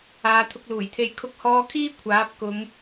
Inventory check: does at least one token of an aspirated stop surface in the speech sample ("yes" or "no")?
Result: yes